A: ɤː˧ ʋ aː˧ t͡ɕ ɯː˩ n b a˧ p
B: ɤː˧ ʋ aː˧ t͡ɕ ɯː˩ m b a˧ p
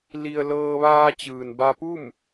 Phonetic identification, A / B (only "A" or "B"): A